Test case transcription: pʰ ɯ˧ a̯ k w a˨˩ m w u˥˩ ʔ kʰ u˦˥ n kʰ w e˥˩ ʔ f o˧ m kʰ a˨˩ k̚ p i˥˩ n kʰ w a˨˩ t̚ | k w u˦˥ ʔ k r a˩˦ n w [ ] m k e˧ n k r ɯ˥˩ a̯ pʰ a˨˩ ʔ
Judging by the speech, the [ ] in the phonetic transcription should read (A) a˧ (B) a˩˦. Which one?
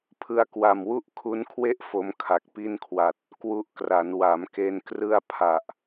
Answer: B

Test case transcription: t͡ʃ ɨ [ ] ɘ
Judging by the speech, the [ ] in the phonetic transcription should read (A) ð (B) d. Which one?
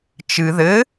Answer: A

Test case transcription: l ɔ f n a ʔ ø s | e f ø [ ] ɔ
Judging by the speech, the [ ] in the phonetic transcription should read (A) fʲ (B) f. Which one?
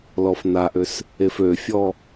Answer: A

